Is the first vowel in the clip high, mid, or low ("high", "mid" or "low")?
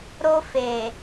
mid